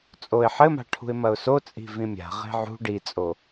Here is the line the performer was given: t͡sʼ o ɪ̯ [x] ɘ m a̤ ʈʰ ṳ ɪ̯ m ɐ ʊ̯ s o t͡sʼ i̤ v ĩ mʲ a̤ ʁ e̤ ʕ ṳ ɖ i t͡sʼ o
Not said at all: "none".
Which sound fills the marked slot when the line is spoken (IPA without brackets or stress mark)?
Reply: ħ